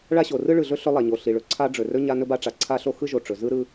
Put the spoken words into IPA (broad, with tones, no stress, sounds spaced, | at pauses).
ɭ a˥ ɕ o˩ r ɯ˥ ɭ ɯ˩ ɮ ɵ˥ ɬ ɵ˥ lˠ a˩ ɲ o˩ ɬ i˩ ɭ ɵ˩ ǀʰ a˥ ɖ͡ʐ ɵ˩ r ɵ˥ ɲ a˥ n ɵ˥ b a˥ ʈ͡ʂ a˩ ǀʰ a˥ ɬ o˥ x ɯ˥ ʒ o˩ ʈ͡ʂ ɵ˩ z ɯ˥ ɾ ɯ˥